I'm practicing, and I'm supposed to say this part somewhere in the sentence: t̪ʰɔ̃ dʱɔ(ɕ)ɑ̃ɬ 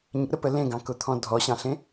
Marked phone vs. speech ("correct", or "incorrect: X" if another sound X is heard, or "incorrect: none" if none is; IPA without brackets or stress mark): correct